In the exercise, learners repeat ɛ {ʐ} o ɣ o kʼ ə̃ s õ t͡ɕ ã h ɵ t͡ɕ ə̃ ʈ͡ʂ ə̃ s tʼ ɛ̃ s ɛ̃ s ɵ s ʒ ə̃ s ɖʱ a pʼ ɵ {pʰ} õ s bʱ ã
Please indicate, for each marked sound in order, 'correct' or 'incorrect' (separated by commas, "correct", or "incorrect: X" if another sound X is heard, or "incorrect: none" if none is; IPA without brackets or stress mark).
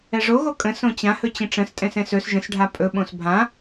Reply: correct, incorrect: ɓ